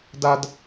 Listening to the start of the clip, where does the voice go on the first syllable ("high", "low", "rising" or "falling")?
low